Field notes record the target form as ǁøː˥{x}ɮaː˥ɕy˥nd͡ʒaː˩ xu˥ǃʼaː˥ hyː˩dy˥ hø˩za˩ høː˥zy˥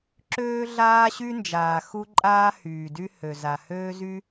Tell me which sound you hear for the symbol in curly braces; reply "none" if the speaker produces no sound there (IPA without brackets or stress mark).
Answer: none